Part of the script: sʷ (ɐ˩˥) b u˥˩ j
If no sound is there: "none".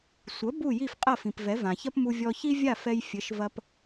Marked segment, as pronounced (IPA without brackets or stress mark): ɐ˩˥